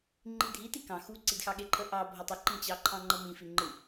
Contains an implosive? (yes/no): yes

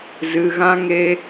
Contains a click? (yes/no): no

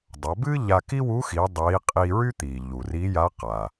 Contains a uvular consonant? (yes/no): yes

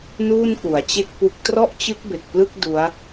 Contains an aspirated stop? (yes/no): no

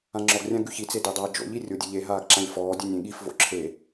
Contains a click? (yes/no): yes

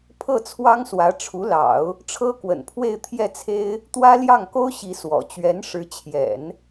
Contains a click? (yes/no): no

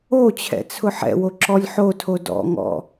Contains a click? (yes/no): yes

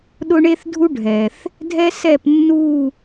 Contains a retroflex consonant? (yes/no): yes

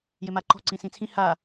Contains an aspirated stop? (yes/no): yes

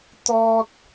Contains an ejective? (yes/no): no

